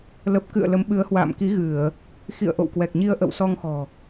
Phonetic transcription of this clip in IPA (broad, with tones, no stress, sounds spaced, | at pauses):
l ə˨˩ p̚ k ɨ̰˧˨ ə̯ l ə˨˦ m ɓ ɨ˨˦ ə̯ h w a̰ː˧˨ m k i˨˦ ɣ ɨ˧˩˨ ə̯ | x ḭ˧˨ ə̯ ʔ o̰˧˨ w k w ɛ˨˩ k̚ ɲ i˧ ə̯ ʔ ə̰˧˨ w s ɔ˧ ŋ x ɔ̤˨˩